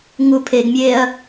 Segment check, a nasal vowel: absent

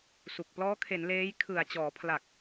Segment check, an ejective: absent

